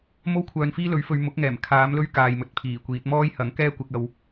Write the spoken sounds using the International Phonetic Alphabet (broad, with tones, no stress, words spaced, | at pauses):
mo˥wkʷʰœː˨nfiː˥lɵ˨˥ɥ fɵ˧ɥ mʊ˨˥k̚ŋɛː˨˩m kʰaː˨˥mlɵ˥ɥkaː˨jmɵ˨t̚ pʰiː˨˩kʷiː˨˥t̚ mɔː˥jhɐ˨˥ŋkɛː˥ kʷɪ˥k̚ɐ˥w